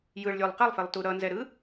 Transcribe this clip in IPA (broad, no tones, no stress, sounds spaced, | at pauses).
j ɯ ɭ lʲ o lˠ q ɛ lˠ f e lˠ t u ɾ ʌ n z ɛ ɾ ɯ